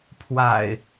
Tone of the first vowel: low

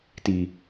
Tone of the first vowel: low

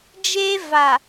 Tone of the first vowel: high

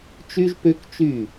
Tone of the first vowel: high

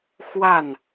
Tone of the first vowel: falling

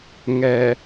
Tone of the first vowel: low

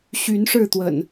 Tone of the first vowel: rising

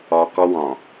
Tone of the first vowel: low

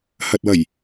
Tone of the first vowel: low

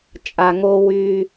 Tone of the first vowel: low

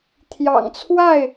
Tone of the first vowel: low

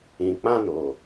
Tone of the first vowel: low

